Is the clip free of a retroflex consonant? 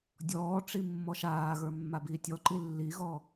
no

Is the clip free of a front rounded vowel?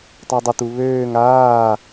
no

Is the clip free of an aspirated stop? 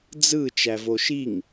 yes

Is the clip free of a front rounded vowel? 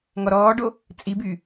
no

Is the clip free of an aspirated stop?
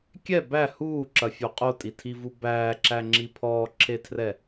no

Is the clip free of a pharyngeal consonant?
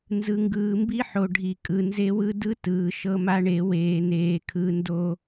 no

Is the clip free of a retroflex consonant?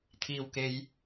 yes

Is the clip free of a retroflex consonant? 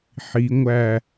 yes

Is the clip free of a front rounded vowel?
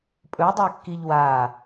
yes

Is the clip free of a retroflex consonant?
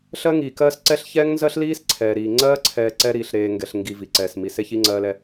yes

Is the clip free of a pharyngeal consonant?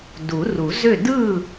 yes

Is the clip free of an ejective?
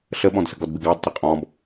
no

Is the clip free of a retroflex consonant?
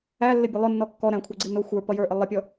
yes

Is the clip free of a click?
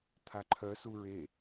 no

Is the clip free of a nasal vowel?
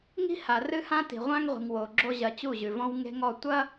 no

